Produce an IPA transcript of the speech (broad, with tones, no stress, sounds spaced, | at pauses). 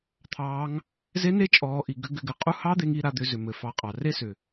t̪ʰ ɑː˧˥ ŋ | z e˧˥ n e˧˥ t͡ʃʼ ɔː˩˧ ʔ i˩ ɡ ʏ˧ ɡ ʏ˩˧ ɡ ɘ˩ qʼ u˧ h ɑ˧˥ d̪ e˩˧ ŋ i˧ ɾ a˩˧ d̪ ʏ˩˧ z ʏ˩ m ɘ˩ f ɑ˩˧ qʼ ɑ˩ r e˥ s ʏ˩